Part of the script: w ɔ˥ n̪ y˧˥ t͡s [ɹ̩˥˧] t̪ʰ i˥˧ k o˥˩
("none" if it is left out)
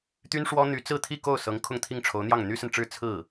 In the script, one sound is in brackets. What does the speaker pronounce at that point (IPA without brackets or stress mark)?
ɹ̩˥˧